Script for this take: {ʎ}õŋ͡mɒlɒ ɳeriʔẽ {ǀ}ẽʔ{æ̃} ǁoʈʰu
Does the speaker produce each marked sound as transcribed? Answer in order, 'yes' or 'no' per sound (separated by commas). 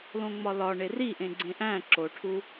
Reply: no, no, yes